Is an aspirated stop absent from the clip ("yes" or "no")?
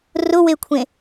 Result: no